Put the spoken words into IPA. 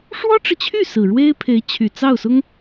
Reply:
ʂwɔ˥ʈ͡ʂɻ̩˨t͡ɕʰy˥˩ sɹ̩˨˩ɻwe˥ɪ̯pʰe˧˥ɪ̯t͡ɕʰy˨˩ t͡sɑ˥˩ʊ̯sʊ˥ŋ

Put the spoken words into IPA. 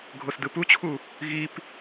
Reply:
ɡʱosdɯput͡ɕʰu | ɣip

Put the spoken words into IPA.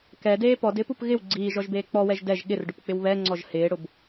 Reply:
kɛdeː pɔdɪːpup ɣɪw ɡ͡ǀiːʒɔʒbeː k͡pɔwɛʒ dɛʒ ɠɪrɖʊpk͡pɪw βɛŋ͡ǀɔʒ hɪːɽʊb

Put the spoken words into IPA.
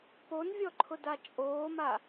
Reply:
ponvʲɔǃʰʊda t͡ʃʼoːma

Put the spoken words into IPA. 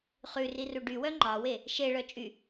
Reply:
χʉriru ɖywœ ŋ͡ǃɑwe | ʃeɭœ t͡ʃʼy

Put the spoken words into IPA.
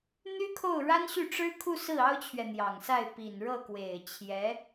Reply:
n̪y˥kʰo˥˩ʊ̯ɻa˥n ɕy˥˩ʈ͡ʂɻ̩˥kʰu˥˧sɹ̩˥˩ ɑ˥ʊ̯t͡ɕʰɥɛ˨n̪jɑ˨˩ŋsa˥˩ɪ̯ pi˨˩nɻɤ˥˩ kwe˨˩ɪ̯t͡ɕʰjɛ˧˥

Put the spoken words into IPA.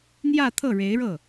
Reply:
n̪jä˥˧t̪ʰɤ˥˩ɻe˧˥ɪ̯ɻɤ˥˩

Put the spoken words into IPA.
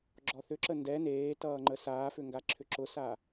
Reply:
ɡ͡ǁɔθʏ ǁəndɛ neːtʌːŋ͡ǃə saːfʏŋɡa ǁʰʏǁʊsa

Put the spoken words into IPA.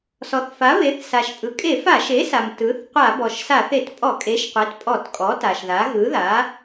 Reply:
sɔ˩θfa˩˥βe˩˥θ sa˩ʃpʼɯ˩ kʼe˧˩˧fa˧˩˧ʃe˩˥sa˩m tɯ˩˥θ qʷa˧˩˧bɔ˩ʃsa˧˩˧θ e˧˩˧t pʼɔ˧˩˧kʼe˩˥ʃqʷe˩˥t pʼɔ˧˩˧tkʼɔ˩˥ ta˩ʃða˩˥ ɣɯ˩˥ða˩˥

